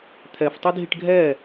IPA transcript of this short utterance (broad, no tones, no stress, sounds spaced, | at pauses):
t̪ʰ ɛ f tˤ y dʱ i ʈ ɡʱ ɛ